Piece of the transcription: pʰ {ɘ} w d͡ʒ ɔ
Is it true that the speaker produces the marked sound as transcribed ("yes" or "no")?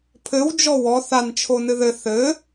yes